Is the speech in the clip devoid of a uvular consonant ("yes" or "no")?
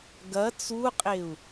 no